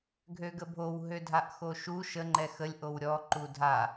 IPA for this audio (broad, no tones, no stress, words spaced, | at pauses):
ɡʱøɡəbʱow ɦødʱaʔxoʃu ʃə ŋ͡ǃɛxəlʲ ʔowɾʲɔ ǃudʱa